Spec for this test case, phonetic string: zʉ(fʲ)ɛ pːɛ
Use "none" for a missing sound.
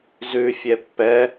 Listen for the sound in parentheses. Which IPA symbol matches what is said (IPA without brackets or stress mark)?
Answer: fʲ